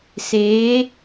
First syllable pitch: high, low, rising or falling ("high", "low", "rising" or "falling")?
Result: rising